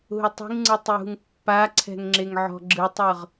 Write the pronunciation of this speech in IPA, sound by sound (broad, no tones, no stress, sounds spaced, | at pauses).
ɦ u tˤ i̤ ŋ ŋ͡ǀ ɯ tˤ j ṳ ŋ pː a ǀʰ ɛ̤ ŋ ŋ͡ǁ e ŋ ʕ ɔ̤ ɡ͡ǁ ɯ tˤ ɤ ʁ